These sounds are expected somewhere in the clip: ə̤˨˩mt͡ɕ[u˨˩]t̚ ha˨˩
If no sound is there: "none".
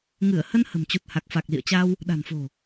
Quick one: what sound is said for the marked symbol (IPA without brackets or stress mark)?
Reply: u˨˩